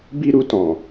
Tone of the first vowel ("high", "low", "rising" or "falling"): high